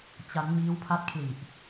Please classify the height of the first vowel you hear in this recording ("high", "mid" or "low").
low